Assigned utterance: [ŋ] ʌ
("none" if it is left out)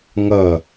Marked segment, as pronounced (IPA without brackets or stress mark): ŋ